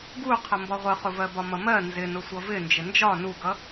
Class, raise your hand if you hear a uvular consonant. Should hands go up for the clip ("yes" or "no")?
yes